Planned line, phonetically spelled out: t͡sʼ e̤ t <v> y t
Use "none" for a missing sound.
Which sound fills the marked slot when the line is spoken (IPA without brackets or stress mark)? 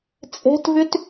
v